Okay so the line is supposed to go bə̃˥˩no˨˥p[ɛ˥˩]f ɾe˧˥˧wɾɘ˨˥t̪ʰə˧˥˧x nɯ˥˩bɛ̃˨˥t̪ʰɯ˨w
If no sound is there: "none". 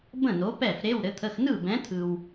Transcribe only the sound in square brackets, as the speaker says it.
ɛ˥˩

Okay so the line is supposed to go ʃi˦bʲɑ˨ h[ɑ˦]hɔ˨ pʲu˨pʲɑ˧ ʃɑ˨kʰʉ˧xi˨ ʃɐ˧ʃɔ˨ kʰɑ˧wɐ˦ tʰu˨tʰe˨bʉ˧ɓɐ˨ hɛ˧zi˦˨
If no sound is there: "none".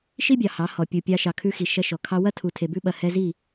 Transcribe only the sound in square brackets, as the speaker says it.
ɑ˨˦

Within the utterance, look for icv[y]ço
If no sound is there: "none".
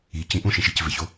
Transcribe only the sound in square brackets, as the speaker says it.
e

